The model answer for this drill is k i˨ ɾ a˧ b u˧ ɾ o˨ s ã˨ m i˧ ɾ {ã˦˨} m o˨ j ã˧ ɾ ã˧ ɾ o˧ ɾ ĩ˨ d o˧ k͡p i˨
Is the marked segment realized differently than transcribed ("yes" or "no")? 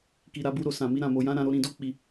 yes